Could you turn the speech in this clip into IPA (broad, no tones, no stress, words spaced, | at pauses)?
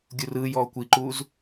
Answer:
ɡʲurɯːjɔː kʷiǃuːz